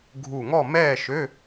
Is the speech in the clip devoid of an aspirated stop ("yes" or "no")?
yes